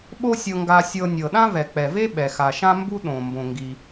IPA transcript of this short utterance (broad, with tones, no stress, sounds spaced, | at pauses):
ɓ o˥ sʲ ɤ˧ ŋ ɡ a˧ sʲ ɤ˧ nʲ ɤ˩ ɗ ã˥ v ɛ˩ k͡p ɛ˩ v e˥ ɓ ɛ˩ x a˩ ʃ ã˥ m b u˥ ɗ õ˩ m b õ˩ ŋ ɡ i˩